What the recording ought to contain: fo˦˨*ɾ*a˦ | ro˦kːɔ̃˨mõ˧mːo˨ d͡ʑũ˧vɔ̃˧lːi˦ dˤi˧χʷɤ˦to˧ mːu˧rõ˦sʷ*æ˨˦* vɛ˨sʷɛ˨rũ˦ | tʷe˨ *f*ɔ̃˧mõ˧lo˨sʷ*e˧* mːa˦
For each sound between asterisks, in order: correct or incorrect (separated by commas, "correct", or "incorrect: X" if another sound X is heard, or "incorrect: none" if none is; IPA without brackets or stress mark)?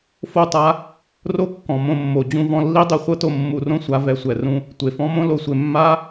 incorrect: tˤ, incorrect: a˨˦, correct, incorrect: e˨